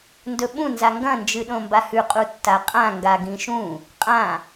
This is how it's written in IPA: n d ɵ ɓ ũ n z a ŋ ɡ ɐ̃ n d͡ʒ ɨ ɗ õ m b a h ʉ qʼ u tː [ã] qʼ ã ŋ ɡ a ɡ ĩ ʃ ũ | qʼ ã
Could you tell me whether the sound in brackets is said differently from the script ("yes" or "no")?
yes